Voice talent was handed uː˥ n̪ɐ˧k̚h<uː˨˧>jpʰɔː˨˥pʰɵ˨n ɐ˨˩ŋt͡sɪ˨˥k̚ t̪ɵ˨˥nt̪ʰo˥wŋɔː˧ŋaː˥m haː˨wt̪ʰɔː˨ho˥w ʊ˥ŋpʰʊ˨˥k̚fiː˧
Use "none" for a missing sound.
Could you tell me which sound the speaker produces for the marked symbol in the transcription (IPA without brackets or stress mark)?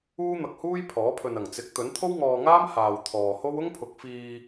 uː˥